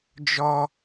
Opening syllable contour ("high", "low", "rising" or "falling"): high